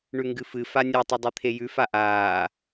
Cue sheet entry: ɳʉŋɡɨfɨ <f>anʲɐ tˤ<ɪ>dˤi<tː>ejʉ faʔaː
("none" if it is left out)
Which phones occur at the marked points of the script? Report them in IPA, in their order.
f, i, t̪ʰ

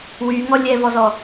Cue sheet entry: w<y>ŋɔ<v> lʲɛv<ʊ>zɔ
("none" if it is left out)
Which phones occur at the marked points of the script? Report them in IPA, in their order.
y, none, ɔ

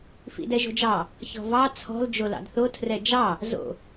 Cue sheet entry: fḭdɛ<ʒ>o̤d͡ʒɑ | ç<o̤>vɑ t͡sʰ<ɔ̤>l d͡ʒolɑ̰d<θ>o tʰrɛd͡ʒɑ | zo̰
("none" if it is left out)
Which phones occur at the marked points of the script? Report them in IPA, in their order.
ʒ, ɔ̤, ɔ̤, θ

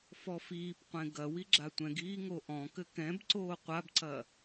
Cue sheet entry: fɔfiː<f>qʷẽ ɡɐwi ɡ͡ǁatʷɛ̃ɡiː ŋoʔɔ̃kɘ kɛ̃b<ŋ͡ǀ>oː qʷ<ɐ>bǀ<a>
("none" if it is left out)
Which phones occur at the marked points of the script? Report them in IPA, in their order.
p, ǀ, a, ɐ

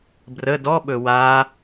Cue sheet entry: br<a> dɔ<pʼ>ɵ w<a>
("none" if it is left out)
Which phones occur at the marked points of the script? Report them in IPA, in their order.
ə, ɓ, a

